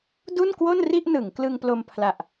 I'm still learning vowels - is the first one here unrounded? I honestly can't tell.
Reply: no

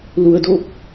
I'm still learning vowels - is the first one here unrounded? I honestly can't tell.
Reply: no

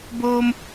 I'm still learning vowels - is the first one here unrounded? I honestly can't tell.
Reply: no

